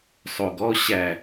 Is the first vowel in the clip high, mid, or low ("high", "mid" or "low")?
mid